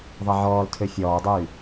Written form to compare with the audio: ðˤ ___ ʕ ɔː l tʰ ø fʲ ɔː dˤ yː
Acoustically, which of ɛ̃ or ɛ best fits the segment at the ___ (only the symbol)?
ɛ